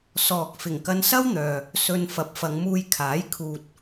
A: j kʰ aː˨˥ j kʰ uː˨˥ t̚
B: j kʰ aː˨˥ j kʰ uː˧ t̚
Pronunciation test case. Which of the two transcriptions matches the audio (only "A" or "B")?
B